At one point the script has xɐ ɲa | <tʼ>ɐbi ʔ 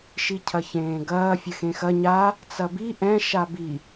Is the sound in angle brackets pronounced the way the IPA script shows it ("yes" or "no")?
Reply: no